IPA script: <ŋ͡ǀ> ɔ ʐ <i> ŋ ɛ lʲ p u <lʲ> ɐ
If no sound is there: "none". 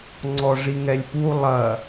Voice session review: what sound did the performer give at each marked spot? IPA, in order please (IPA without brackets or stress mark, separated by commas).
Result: ŋ͡ǀ, i, lˠ